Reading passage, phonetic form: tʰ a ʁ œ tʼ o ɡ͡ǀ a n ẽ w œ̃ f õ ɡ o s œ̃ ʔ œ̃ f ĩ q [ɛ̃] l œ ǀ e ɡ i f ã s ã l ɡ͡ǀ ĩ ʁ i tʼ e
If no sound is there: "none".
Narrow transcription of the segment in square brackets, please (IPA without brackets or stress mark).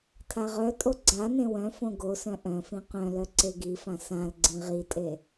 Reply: œ̃